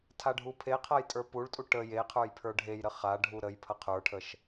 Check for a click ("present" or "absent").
absent